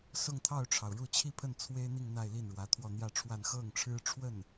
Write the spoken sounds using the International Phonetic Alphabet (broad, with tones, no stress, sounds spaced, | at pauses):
s ʊ˥˧ ŋ t̪ʰ ɑ˥˩ ʊ̯ ʈ͡ʂʰ ɑ˩ ʊ̯ ɻ u˥˧ t͡ɕʰ i˥˧ pʰ ə˥˩ n t͡sʰ w e˥ ɪ̯ n̪ i˥˧ ŋ n̪ a˥˧ ɪ̯ l i˥˩ n ɻ w ä˧˥ t̪ʰ w ɔ˥˧ n̪ j ä˥˧ ʈ͡ʂʰ w a˥˧ n x ɤ˥˩ ŋ ʈ͡ʂʰ ɻ̩˥ ʈ͡ʂʰ w ə˥˩ n